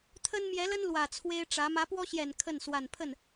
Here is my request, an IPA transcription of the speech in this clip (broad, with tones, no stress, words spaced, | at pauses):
t̪ʰə˥n mjɛ˧˥lə˥n lwä˨˩t͡sʰwe˥ɪ̯ʈ͡ʂä˧˥ mä˧˥pwɔ˥ɕjɛ˨˩n kʰə˥˩n swa˨˩npʰə˥˩n